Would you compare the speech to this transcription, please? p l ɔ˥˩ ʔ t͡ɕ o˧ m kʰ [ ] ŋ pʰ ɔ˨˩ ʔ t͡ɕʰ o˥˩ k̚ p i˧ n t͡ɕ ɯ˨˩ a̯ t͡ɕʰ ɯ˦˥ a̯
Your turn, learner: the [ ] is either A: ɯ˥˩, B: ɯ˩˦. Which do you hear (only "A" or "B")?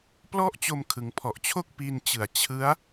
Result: B